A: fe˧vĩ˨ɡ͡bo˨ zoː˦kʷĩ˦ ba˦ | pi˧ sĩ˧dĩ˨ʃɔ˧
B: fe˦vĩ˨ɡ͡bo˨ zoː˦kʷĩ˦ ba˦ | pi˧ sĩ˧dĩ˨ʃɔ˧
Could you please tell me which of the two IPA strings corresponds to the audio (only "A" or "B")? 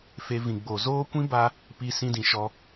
A